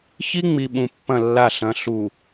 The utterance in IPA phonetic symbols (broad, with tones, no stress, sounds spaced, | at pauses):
ç i˦ ŋ͡m i˨ ɓ ũ˨ pː ɐ̃˦˨ lː a˦˨ ɬ ɐ̃˨˦ ɬ u˨